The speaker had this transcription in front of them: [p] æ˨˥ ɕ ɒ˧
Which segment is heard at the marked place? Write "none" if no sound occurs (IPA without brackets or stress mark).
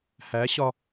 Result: h